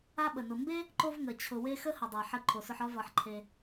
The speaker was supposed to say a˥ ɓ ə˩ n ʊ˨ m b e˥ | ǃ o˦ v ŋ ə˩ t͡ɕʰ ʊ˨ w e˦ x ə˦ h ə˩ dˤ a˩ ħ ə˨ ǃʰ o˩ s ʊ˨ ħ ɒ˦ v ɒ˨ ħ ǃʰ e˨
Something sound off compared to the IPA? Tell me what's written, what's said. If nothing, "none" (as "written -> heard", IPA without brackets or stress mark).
none